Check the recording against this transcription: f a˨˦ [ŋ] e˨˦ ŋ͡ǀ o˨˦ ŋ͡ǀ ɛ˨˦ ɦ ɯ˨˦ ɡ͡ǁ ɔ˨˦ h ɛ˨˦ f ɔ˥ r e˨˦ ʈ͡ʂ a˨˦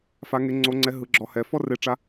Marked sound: correct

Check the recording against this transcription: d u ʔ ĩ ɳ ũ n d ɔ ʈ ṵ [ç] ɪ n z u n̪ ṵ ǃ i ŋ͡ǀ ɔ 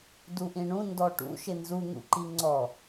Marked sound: incorrect: ʃ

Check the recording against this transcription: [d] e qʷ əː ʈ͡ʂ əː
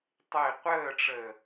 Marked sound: incorrect: tˤ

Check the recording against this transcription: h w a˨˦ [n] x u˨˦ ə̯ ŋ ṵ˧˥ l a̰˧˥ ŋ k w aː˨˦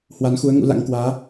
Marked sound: correct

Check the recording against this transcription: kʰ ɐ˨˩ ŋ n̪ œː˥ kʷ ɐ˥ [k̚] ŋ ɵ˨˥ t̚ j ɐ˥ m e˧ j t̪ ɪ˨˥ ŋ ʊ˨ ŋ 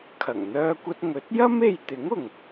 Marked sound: incorrect: t̚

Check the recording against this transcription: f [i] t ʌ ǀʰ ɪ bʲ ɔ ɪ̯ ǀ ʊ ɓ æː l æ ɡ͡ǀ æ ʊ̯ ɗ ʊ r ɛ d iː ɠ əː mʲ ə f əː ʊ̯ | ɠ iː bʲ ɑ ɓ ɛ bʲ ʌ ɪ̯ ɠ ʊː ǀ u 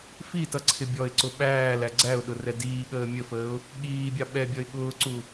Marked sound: correct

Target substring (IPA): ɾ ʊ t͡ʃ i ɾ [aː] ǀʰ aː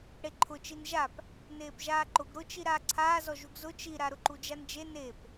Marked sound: correct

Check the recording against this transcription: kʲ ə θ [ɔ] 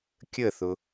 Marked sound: incorrect: ʊ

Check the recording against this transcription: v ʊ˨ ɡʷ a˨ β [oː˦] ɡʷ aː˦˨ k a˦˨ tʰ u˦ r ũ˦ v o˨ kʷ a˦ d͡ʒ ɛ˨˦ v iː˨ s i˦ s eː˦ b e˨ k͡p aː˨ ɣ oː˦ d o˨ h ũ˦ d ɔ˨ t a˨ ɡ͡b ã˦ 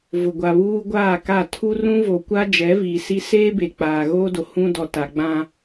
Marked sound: incorrect: uː˦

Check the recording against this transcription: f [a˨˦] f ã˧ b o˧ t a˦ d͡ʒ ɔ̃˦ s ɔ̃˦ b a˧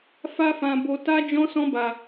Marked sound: incorrect: a˦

